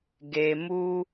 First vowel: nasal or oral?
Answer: oral